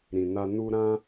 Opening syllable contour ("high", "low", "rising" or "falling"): low